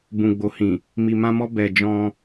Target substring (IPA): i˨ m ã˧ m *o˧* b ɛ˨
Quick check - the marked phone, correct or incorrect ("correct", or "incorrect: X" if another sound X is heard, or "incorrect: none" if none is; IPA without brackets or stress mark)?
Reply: incorrect: ɔ˧